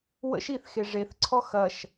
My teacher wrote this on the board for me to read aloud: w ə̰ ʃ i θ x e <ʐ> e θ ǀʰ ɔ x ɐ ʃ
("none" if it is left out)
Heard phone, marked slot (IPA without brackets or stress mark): ʐ